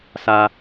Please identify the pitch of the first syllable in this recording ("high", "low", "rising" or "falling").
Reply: high